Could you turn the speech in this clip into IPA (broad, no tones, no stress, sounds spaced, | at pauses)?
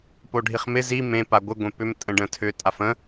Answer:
p o ɖʱ i χ m ɪ z i m ẽ p a ɡʷ ɪ ɡʷ ẽ p ʏ m tʼ ə̃ ɖ ə̃ tʰ ʏ tʼ a f ə̃